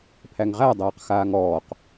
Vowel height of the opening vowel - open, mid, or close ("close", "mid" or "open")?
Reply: open